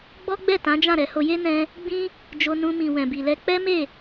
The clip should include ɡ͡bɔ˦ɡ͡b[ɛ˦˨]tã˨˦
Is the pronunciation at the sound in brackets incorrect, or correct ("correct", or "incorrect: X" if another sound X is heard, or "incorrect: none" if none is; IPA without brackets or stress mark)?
correct